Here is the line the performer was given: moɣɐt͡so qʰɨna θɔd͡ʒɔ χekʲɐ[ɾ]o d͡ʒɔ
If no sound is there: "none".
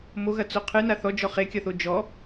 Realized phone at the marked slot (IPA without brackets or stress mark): θ